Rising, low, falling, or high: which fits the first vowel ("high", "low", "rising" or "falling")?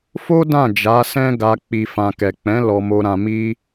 high